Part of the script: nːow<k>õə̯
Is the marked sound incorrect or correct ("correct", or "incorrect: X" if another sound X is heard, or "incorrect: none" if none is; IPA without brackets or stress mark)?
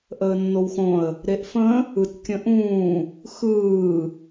incorrect: x